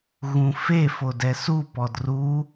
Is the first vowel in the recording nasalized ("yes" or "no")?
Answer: yes